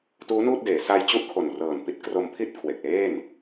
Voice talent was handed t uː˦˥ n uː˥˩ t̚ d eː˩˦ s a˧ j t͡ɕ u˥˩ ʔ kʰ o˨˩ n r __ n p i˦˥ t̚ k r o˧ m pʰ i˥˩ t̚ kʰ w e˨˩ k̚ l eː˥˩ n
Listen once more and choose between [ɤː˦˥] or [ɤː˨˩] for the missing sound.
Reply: ɤː˨˩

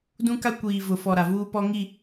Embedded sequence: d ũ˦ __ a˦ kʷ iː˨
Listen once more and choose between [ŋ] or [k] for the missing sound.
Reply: k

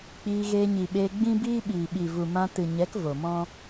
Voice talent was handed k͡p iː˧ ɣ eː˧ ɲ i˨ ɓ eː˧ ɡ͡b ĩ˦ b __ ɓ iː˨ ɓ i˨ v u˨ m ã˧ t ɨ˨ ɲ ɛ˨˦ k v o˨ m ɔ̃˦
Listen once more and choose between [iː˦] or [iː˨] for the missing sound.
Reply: iː˦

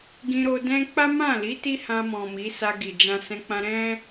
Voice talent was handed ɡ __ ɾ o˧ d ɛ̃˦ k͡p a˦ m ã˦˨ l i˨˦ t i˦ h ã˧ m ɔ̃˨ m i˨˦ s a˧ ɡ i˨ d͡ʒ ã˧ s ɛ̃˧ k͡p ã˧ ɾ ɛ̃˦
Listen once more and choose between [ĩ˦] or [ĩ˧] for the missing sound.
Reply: ĩ˧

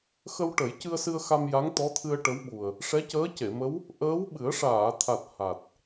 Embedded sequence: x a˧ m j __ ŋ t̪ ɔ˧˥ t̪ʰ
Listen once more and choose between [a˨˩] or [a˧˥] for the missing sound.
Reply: a˧˥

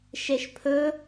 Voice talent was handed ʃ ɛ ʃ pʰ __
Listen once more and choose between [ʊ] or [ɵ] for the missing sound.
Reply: ɵ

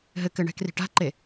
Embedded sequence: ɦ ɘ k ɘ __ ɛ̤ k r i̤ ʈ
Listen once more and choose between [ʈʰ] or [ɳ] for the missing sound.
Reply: ɳ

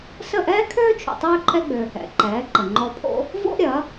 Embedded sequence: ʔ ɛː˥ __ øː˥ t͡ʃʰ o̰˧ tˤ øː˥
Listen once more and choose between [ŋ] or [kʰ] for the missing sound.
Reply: kʰ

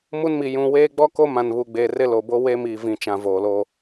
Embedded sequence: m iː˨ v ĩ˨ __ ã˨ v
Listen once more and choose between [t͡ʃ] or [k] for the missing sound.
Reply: t͡ʃ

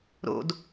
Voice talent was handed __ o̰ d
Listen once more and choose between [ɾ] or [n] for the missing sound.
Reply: ɾ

